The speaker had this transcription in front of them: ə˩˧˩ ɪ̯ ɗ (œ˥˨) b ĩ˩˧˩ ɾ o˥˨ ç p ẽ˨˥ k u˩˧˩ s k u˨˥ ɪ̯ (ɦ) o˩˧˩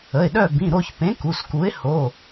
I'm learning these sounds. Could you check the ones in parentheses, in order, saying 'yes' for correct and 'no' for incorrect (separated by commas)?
yes, no